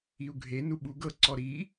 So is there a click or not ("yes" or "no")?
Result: yes